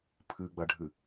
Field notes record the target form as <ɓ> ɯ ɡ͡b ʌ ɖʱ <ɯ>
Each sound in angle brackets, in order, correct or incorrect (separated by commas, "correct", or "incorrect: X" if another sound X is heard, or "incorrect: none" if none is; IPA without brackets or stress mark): incorrect: pʰ, correct